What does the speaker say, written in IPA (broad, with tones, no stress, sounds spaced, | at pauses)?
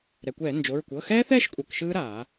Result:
ɾ ɛ˩ kʷ ɛː˧˩˧ n d͡ʒ o˩˧˩ ɹ kʷ ɤ˩˧˩ x ɛː˦˥ θ ɛː˥˧ ʃ kʷʼ ɤ˩˧˩ k ʃ ɯː˦˥ ɾ aː˧˩˧